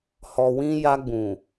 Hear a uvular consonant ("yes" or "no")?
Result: no